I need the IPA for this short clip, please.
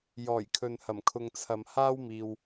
j ɔː˨˩ j kʰ ɵ˨ n h ɐ˨˩ m kʰ ʊ˨ ŋ t͡sʰ ɐ˨ m h aː˥ w m iː˨ w

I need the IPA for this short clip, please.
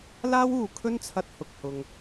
l aː˥ w uː˨˧ kʰ ɵ˥ n t͡sʰ ɐ˧ t̚ h ʊ˨ k̚ h ʊ˧ ŋ

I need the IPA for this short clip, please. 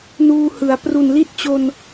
n uː˧ h ɯ˩˦ a̯ p r u˨˩ n l i˦˥ t̚ t͡ɕ o˧ n

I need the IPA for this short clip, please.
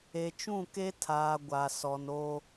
e˨ t͡ʃ ũ˦˨ k e˦ tʰ aː˨ ɡʷ a˨ s ɔ˨ n o˦

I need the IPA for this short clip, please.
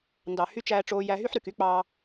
n d ɑ˨ h y˧ t͡ʃ æː˧ ʈ͡ʂ oː˧ j æ˧ ɦ y˦ ħ ɾ y˨ k y˦ k͡p ɑ˦

